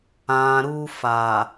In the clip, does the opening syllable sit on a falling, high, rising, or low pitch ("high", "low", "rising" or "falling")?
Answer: low